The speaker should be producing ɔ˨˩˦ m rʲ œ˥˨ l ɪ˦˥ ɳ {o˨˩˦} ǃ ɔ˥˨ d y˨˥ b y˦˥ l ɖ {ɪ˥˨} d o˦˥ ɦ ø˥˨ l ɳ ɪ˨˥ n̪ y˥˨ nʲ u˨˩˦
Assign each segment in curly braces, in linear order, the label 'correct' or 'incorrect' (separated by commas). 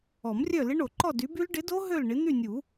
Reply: correct, incorrect